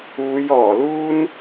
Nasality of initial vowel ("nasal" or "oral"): oral